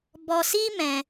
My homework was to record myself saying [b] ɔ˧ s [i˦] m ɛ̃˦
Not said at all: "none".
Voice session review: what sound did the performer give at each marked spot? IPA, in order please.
b, i˦

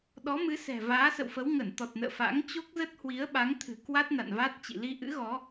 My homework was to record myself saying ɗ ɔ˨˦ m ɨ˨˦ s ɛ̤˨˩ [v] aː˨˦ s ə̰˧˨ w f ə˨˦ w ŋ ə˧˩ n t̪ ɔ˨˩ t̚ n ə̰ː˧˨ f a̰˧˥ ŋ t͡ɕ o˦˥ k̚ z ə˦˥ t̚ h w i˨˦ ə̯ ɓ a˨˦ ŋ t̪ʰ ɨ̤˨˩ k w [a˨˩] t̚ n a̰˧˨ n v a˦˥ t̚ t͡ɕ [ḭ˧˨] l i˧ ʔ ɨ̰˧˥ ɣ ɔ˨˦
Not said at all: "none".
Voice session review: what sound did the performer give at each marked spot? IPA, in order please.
v, a˦˥, ḭ˧˨

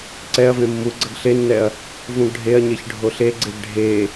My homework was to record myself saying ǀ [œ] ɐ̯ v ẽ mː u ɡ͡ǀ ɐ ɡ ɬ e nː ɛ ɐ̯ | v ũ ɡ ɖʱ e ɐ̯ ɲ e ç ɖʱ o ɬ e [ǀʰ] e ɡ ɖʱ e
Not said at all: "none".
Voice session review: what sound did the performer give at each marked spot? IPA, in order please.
ɛ, ɡ͡ǀ

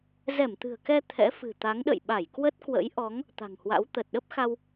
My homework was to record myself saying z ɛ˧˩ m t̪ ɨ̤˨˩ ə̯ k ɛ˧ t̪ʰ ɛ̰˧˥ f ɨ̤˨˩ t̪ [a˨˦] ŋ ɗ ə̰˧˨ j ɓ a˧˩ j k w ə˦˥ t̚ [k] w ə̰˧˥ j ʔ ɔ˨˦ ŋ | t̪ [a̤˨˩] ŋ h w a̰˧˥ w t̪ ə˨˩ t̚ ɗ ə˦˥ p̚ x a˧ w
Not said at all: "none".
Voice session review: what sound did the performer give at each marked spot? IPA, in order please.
a˨˦, k, a̤˨˩

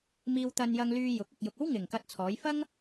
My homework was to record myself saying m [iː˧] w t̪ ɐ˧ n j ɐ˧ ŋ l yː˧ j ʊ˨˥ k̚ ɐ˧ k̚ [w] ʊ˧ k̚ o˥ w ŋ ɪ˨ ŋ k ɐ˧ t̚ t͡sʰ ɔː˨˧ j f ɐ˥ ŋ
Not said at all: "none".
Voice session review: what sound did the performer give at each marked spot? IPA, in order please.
iː˧, j

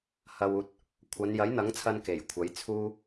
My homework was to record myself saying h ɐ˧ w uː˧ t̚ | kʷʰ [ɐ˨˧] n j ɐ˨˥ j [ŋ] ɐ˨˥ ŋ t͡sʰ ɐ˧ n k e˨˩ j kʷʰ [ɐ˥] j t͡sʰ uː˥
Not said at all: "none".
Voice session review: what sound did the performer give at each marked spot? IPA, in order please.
ɐ˨˧, n̪, ɐ˨˥

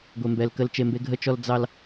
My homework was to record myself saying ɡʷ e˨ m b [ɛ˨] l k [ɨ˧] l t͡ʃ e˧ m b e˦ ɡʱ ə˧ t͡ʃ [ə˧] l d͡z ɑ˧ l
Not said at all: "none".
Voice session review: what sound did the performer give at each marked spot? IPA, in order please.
ɛ˨, ə˧, ɔ˧

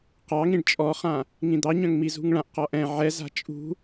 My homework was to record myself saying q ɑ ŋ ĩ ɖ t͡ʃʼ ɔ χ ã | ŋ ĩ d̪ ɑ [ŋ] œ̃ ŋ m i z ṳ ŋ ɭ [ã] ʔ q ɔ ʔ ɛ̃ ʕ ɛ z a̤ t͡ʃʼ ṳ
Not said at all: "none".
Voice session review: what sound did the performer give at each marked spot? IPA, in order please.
ɲ, ã

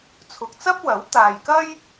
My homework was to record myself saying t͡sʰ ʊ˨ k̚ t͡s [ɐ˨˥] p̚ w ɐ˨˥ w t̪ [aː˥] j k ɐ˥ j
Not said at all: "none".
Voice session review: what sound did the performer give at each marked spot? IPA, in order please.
ɐ˥, aː˨

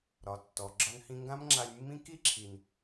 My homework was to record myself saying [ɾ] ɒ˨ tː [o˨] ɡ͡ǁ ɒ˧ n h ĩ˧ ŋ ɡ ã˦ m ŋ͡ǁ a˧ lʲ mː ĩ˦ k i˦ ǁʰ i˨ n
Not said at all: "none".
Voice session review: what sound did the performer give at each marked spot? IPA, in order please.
ɾ, ɔ˨

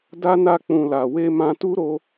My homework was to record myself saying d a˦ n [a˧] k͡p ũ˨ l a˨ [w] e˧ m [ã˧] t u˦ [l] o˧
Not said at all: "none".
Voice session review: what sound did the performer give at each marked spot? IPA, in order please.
a˦˨, w, ã˧, ɾ

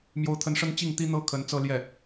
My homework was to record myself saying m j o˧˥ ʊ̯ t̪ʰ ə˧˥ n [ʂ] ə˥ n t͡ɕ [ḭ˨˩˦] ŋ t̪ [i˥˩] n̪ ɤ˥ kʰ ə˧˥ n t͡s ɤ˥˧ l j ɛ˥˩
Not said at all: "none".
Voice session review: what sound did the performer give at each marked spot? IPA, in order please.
ʂ, i˥˩, i˥

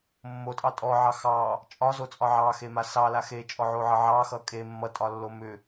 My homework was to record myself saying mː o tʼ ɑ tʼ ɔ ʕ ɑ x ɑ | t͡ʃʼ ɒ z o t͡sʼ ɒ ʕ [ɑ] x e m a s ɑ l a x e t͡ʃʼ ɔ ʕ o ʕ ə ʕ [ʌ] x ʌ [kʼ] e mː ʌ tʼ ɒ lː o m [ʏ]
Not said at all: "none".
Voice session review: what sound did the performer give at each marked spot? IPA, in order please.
ɑ, ɑ, kʼ, ʏ

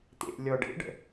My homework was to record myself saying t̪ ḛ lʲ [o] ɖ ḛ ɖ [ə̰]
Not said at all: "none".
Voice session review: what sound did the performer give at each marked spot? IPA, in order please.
ɔ, ə̰

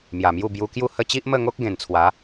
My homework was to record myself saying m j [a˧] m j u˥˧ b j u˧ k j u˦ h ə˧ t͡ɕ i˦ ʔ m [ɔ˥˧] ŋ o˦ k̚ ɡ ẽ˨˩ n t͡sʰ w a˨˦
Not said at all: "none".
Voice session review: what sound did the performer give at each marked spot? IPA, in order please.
a˨˩, ə˥˧

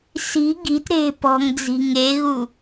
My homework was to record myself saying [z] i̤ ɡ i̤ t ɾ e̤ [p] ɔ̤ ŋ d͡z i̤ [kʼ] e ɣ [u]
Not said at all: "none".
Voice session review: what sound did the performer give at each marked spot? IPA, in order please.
s, p, ŋ, u

